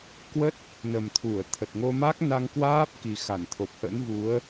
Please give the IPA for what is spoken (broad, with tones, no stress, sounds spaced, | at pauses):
k w ə˦˥ t̚ | n ə˨˩ m t̪ʰ u˧˩ ə̯ t̪ʰ ə˨˩ t̚ ŋ o˧ m a˦˥ k̚ n a˧ ŋ k w aː˦˥ p̚ k i˨˩ x a˧˩ n t̪ʰ o˨˩ p̚ h ə̰˧˥ n v u˨˦ ə̯